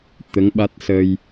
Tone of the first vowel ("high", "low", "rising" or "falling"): rising